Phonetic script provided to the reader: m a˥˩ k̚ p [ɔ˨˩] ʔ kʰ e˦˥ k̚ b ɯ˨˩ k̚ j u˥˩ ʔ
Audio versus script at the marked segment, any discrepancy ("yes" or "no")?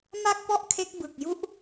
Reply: yes